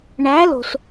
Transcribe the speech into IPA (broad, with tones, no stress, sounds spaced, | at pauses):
ɳ æ˨˥ l o̤˩ s